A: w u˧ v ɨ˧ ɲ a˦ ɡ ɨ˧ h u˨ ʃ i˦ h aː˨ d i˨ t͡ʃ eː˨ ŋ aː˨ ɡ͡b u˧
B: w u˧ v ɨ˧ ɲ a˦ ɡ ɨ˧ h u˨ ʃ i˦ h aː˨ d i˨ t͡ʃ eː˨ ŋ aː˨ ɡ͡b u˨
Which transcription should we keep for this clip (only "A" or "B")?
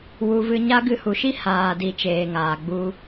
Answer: A